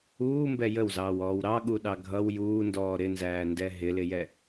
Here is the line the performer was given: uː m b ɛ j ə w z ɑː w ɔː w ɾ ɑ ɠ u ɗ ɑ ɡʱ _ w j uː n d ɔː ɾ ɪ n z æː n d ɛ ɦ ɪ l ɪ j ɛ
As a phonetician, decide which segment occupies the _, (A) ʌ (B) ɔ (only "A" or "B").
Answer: A